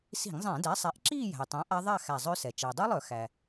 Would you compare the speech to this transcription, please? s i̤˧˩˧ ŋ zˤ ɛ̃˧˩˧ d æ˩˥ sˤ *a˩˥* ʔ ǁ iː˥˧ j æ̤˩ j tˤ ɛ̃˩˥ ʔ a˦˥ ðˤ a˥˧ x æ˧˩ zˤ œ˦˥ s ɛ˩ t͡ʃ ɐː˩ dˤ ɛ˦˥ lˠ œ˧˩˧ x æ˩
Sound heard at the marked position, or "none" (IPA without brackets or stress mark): æ˩˥